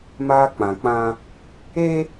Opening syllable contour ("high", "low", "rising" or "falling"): high